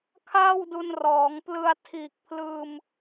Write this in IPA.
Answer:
kʰaː˥˩wdu˧nrɔː˩˦ŋplɯ˧a̯ tʰiː˨˩k̚pʰlɯː˧m

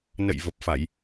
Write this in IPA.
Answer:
nə̰˧˨jvə˨˩p̚fa˧˩˨j

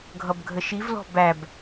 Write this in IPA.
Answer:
ɡʱʌbɡʱəʃivlɔ̤ bæb

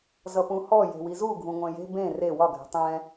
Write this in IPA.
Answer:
zʌpũhɔ je̤wizuɡʱũ ŋʷɛ̃je̤ bẽ re wɒɡʱɛ̤ tˤɛ̃

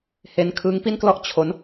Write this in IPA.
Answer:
he˦˥n kʰɯː˦˥ŋpi˥˩nklɔ˥˩ʔ t͡ɕʰo˦˥n

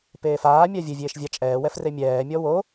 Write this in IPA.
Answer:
peːfaː mʲavʲɘ vʲeːʃvʲat͡ʃʼɛː wɛfremʲɛː mʲɔwo

